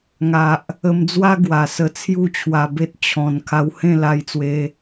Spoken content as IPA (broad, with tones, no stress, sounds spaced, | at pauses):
ŋ a˨ ʔ | ə˧ m d͡z w a˦ ɡ w a˨˩ s ə˧ t͡sʰ j u˥˧ t͡ɕʰ w a˧ b e˦ t̚ t͡ɕʰ ɔ̃˨˩ n kʰ a˧ w h ẽ˥˧ l a˧ j t͡s w e˧